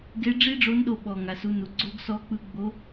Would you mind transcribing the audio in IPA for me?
ɡ e˧˥ ɖ͡ʐ i˥ ɖ͡ʐ o˧˥ n ɗ o˧ ɓ ɔ˩ ŋ a˩ s u˩˧ n u˩ ɡ͡ǀ o˧˥ ɡ s ɔ˧˥ k͡p ɯ˧˥ ɡ͡b o˧˥

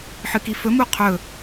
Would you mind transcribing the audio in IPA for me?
ħ ɨ k i f ɵ m u qʰ ɵ

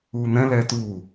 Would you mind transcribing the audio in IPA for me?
uː n̪ ɛ̃ l ɛː t uː

